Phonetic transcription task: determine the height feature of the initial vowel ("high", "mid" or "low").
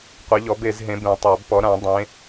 mid